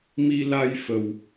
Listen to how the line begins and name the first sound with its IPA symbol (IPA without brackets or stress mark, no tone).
m